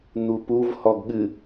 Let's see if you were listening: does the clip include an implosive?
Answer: yes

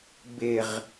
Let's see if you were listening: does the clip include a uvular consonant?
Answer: yes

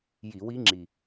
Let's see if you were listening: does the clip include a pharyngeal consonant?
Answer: no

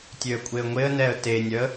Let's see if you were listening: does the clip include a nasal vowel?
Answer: no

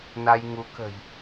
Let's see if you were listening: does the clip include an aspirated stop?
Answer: no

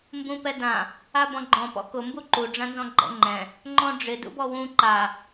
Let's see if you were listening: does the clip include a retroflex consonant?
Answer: yes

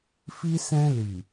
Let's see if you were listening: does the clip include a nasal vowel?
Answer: yes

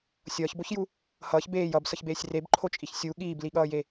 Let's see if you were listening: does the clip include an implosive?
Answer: yes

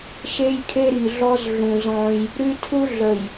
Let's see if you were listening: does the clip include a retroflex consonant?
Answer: no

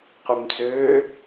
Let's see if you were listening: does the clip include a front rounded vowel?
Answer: yes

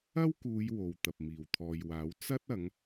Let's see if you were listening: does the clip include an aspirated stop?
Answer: yes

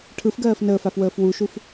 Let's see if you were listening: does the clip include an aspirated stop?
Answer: yes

